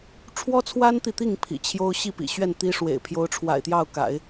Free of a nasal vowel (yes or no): yes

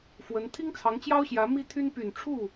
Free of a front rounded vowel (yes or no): no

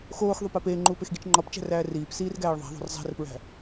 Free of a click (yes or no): no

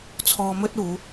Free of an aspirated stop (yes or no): no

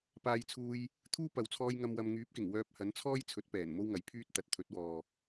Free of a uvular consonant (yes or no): yes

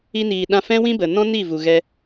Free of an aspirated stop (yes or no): yes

